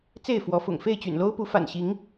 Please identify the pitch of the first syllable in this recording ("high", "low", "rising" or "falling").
falling